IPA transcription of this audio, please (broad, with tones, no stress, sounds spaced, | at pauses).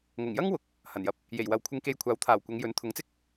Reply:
ŋ ʊ˨˩ ŋ j ɐ˥ ŋ w ʊ˨˥ k̚ | h ɐ˨˩ n j ɐ˨˥ p̚ | j e˨˩ j w ɐ˨ w kʷʰ ɪ˧ ŋ k e˧ j kʷʰ aː˨˥ w t̪ʰ aː˨˩ w kʷ ɐ˨˧ ŋ j ɵ˨˥ n t̪ʰ ʊ˨˥ ŋ t͡s ɪ˥ k̚